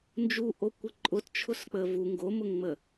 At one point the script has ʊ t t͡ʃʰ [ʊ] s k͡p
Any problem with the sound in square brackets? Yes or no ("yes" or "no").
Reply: no